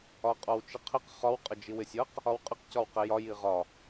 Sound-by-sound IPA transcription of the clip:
ɒ qʼ ɔ w t͡ʃ ɪ qʰ ɪ q χ ɒ w qʼ ə d͡ʒ i w ɪ sʲ ʌ q | ɒ w qʼ ɪ q c ɒ w q ɛ j ɒ j i ʁ ɒ

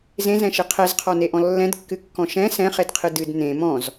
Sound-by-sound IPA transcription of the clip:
z ẽ z ɛ̃ ʃ e qʰ ɛ z qʰ ɔ n e ʔ ɔ̃ lː ɛ̃ d kː ɨ kː ɔ̃ ʃ ɛ̃ s ɛ̃ χ e d qʰ ɨ d ɨ d n ẽ m ɔ̃ z

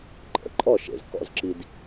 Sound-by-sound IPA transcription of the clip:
ǃʼ ə̰˨ ǃʼ ɔ˦˨ ʃ ḛ˨ z k ɔ̰˧ z ǁ i˧ d

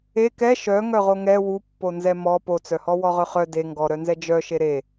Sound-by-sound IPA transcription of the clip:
e k ɛ ʃ œ ŋ œ ʁ o ŋ ɛ w u pː o n z ɛ m ɔ p o t͡s œ h ɔ w ɔ ʁ œ χ œ d e ŋ ɡ ɔ ɾ œ n z ɛ d͡ʒ œ ʃ e ɾ e

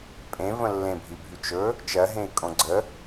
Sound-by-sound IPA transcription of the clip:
pʼ ẽ v ə̃ lː ẽ bʱ i bʱ y t͡ʃ ɵ | t͡ʃ ɜ ɦ ẽ i̯ kʼ õ ɡ͡ǀ ə

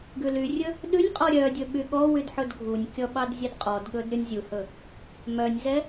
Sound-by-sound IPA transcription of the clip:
ɡ ʉ l y rʲ ɵ | ɗ ʉ nʲ qʼ ɔ ɾʲ œ dʲ ɵ ɓ y ɠ ɔ w y d ħ ɵ d ɡʱ u nʲ kʲ ɔ ɓ ɑ d zʲ ɛ d qʼ ɔ d ɠ ɵ d ɾʲ ɔ nʲ zʲ u h ɵ | m œ nʲ z ɛ

